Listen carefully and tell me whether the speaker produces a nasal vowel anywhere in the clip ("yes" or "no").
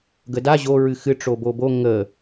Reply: no